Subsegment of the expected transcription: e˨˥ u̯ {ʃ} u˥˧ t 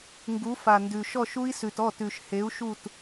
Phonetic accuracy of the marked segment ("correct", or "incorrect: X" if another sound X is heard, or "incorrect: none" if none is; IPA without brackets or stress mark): correct